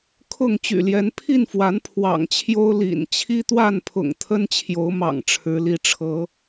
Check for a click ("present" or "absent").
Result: absent